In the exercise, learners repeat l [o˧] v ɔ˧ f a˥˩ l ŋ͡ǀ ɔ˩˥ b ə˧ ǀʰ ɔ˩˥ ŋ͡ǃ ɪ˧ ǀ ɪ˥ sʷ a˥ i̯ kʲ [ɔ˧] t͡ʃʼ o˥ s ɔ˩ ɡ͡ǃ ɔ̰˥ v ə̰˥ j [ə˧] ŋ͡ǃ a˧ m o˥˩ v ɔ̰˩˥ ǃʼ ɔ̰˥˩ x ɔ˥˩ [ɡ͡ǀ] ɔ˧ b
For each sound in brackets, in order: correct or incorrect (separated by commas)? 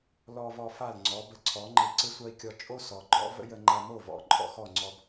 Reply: incorrect, correct, correct, incorrect